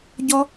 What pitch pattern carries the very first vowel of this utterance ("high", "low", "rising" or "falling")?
high